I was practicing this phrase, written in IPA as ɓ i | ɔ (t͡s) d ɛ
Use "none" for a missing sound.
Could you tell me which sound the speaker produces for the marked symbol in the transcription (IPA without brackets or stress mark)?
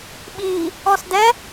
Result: s